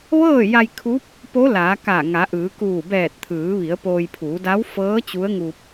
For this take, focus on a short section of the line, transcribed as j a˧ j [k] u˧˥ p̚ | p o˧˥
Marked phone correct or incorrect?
incorrect